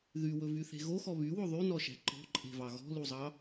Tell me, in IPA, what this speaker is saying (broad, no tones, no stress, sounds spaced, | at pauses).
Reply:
ð y w ɵ v y θ e̤ ɣ o x ɔ β y w o ðˤ y n ɔ ʃ æ̤ ǃ ɔ̤ ǃʼ e̤ v ɑ ɣ ɔ̤ l u zˤ ɑ